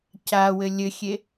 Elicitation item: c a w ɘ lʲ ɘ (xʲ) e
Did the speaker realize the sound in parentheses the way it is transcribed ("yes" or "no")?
yes